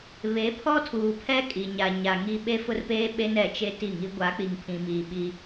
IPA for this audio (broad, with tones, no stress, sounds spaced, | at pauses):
β e˨˦ pʰ ɔ˦ tʰ uː˨ pʰ ɛ˦ kʼ i˨ ɲ a˨ ɲ a˨ ŋ i˦ ɓ e˦ f ʊ˦ r p eː˦ ɓ e˦ n ɛ˨ t͡ʃ e˦ t i˦˨ ŋ i˦ ɡʷ a˨˦ k͡p i˨ ŋ pʰ ĩ˨ m iː˨ ɓ i˦